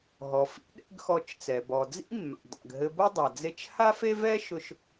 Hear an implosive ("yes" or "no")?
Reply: yes